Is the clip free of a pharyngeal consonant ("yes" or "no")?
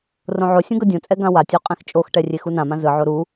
no